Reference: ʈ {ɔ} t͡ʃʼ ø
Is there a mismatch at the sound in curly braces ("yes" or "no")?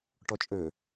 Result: no